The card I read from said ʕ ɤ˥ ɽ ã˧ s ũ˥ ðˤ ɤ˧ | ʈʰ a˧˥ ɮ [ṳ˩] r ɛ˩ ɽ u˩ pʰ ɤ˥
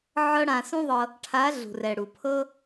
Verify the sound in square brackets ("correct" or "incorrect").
correct